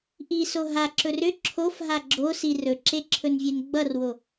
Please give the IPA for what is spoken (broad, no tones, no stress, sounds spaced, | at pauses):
ʔ i s o ɦ a ǁ ɵ r ʏ ǁʰ o f ɦ a ɡ͡ǁ o s i r ɵ ǁ e ǁʰ ɵ n vʲ e n ɡ͡b ʌ r w o